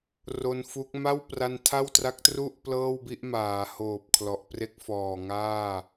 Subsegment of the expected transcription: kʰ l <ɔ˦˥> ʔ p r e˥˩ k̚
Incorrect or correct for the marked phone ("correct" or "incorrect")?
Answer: incorrect